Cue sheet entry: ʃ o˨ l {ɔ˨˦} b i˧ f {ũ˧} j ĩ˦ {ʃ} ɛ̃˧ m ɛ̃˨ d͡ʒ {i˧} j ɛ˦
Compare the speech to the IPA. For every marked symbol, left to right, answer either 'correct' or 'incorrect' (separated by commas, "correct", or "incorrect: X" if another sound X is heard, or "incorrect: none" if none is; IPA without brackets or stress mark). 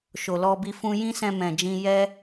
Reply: incorrect: ɔ˧, correct, incorrect: s, incorrect: ĩ˧